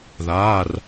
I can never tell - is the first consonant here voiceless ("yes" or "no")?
no